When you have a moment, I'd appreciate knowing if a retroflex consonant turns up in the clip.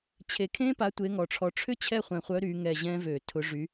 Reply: yes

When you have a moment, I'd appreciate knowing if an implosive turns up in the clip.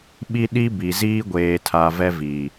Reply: yes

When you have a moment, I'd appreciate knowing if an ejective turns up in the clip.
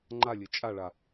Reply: yes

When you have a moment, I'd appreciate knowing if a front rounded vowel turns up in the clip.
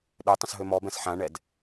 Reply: yes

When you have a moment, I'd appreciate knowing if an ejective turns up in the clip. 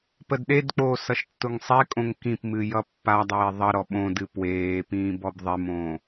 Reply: yes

